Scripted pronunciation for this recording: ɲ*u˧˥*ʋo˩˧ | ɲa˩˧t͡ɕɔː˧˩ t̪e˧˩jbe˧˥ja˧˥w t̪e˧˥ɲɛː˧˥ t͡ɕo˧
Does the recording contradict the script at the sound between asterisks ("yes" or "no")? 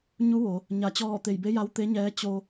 no